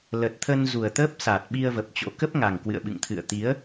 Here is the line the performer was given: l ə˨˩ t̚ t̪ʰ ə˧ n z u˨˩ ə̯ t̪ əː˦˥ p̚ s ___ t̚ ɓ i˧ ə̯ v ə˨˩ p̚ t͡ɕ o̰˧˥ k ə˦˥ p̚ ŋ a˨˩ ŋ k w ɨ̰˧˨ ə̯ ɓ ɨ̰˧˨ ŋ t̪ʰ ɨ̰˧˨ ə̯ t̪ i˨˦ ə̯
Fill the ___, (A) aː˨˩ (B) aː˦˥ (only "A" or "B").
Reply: A